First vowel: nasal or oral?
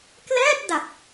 oral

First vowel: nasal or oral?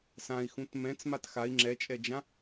nasal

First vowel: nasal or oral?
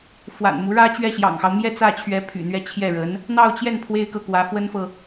oral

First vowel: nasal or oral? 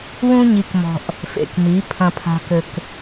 nasal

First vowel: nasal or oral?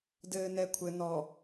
oral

